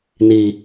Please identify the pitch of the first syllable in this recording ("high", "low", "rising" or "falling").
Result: low